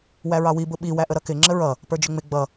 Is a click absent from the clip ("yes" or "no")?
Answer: no